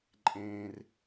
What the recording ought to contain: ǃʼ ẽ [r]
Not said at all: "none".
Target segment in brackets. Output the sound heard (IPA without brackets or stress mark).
r